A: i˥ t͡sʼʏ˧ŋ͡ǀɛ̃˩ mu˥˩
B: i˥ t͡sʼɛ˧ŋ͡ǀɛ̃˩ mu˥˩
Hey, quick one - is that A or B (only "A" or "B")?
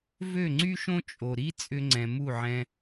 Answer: A